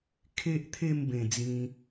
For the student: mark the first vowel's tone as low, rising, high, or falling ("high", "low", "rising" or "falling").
high